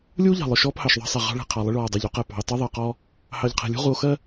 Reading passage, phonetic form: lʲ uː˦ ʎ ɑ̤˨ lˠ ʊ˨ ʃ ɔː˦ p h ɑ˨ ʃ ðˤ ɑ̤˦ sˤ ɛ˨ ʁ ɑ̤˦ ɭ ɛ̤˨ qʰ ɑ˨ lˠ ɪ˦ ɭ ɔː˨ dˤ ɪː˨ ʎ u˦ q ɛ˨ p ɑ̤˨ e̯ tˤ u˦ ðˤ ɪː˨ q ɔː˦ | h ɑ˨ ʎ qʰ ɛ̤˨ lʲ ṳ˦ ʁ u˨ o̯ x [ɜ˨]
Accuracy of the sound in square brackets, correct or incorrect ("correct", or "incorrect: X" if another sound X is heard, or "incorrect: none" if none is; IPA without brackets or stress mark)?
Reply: incorrect: ɜ˦